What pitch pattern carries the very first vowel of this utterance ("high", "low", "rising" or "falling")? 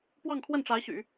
falling